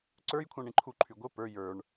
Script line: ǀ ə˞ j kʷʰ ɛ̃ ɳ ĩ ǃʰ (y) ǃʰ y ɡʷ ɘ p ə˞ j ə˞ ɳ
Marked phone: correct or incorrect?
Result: incorrect: u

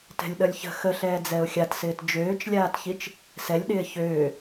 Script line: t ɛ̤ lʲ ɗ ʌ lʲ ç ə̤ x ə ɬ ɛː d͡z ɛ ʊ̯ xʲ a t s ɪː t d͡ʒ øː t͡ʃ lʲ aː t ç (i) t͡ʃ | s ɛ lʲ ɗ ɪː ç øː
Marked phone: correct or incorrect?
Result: correct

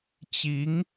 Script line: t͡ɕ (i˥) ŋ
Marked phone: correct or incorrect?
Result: incorrect: i˧˥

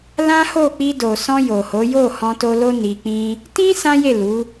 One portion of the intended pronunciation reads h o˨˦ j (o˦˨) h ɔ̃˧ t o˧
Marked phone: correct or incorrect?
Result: correct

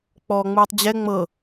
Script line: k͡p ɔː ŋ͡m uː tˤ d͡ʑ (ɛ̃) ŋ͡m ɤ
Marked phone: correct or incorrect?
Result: incorrect: ɛ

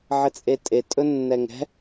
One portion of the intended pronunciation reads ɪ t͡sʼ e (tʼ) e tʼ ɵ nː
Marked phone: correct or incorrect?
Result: correct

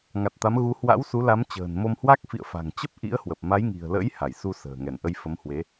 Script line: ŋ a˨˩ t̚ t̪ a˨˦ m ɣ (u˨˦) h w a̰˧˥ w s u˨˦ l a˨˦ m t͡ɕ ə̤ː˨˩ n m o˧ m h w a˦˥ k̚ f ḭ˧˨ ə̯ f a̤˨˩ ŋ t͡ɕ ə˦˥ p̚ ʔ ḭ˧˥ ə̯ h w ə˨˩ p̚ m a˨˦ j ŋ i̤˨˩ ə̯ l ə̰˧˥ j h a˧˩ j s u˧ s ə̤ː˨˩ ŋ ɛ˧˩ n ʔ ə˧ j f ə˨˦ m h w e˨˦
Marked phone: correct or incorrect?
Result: correct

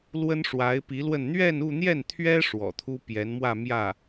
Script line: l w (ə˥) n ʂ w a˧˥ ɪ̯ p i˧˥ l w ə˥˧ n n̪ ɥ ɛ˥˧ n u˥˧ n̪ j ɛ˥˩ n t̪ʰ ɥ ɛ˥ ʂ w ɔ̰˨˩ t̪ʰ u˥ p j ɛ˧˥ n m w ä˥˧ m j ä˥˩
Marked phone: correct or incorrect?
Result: correct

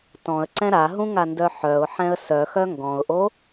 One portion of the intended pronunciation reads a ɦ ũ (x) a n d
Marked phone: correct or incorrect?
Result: incorrect: ŋ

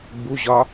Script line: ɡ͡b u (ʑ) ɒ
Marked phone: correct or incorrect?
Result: correct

